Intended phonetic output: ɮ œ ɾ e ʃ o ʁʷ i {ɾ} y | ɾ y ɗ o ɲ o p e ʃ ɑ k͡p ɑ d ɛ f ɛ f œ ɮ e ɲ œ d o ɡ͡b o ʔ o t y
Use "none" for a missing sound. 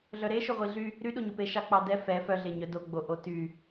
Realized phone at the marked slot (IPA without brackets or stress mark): ɮ